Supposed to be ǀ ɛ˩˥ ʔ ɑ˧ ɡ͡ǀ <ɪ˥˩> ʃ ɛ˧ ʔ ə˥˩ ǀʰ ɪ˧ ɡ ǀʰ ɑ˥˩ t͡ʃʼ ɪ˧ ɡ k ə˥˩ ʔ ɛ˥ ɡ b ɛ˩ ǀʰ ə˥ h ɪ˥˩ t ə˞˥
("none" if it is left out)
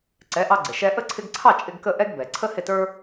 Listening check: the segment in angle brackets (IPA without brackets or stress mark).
ɪ˩